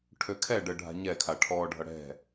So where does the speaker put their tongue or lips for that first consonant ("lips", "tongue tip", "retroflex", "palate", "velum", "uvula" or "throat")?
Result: retroflex